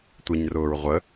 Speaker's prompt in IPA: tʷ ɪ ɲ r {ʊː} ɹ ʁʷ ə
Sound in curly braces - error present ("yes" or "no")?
no